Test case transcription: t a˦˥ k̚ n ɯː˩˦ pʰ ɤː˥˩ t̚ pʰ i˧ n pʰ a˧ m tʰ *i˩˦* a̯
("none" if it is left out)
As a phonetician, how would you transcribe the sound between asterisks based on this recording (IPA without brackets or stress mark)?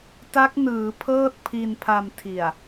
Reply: i˨˩